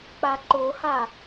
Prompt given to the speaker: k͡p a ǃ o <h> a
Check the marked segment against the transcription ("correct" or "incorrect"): correct